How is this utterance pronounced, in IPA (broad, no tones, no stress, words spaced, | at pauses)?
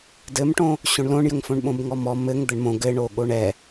dɘmʈõ | ɕõɳlõɳjəŋfõɳ ɓõbŋɔmɔ mɘŋ d̪əɳmõ ɡɘɳo ɠoɳɛ